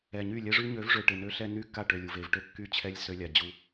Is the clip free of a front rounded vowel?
no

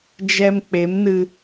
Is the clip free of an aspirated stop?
yes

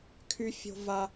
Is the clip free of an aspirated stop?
no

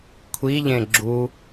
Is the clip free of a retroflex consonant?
yes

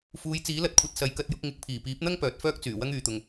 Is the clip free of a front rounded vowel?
no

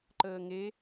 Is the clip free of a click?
no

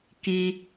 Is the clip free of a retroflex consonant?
yes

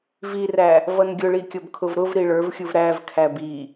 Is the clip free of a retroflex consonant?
no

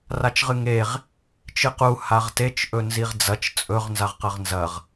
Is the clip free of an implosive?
yes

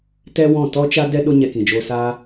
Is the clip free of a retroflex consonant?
yes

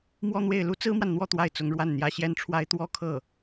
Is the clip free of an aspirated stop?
no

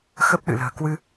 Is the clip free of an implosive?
no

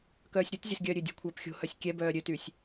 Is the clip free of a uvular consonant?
yes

